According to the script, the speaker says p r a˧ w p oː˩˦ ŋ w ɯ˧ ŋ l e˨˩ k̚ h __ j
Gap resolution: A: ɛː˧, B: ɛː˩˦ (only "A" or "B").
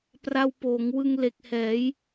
B